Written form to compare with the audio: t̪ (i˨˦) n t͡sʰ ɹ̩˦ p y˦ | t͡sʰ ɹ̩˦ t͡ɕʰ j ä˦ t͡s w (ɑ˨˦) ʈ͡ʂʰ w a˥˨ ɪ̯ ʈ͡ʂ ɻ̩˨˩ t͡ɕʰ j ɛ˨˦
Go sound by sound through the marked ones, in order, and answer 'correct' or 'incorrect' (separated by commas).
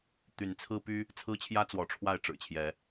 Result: incorrect, incorrect